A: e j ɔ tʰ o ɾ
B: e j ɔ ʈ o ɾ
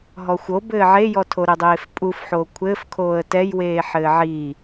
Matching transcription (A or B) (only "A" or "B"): A